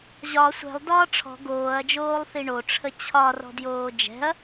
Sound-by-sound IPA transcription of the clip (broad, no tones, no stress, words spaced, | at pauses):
ʑɒ sʷɛ̤lˠdɒː ʈ͡ʂʰɔ̤ ɡoːɐ̯d͡ʒoːlˠθi ɳoʈ͡ʂʰə t͡ɕʰɒrɔ̤djoː d͡ʒɛ̤ɐ̯